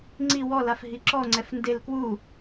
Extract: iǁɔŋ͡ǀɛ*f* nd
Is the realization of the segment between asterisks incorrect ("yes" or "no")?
no